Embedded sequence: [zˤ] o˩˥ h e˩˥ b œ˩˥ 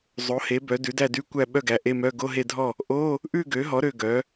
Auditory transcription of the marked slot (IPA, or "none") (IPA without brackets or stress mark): zˤ